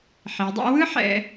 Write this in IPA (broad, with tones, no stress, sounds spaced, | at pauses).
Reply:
ħ i˩˧ dˤ ɛ̰˥ w ɯ˥ ħ ɛ̰˧